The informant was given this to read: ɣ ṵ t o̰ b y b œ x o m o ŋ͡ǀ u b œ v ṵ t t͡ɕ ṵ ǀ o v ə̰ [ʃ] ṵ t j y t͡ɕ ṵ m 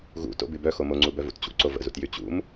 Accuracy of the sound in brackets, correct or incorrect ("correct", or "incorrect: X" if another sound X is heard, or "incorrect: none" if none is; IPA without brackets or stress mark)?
incorrect: z